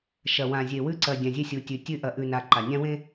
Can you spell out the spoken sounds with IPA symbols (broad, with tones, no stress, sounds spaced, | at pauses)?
ʃ ɐ˨ w ã˨ zʲ e˨ w ʉ˦ ǀ ɐ˨ dʲ ã˨ zʲ e˦ sʲ u˨ tʲ ʉ˨ tʲ ʉ˦ ʔ ɐ˨ ʔ ʉ˨ n a˨ ǃ a˨ nʲ ã˦ w ẽ˦